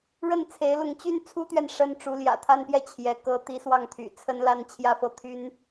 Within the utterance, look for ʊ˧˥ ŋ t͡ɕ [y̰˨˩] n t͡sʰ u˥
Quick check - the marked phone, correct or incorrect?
incorrect